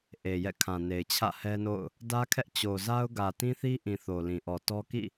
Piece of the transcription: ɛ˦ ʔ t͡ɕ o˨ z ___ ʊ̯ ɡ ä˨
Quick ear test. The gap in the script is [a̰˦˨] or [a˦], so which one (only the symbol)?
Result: a˦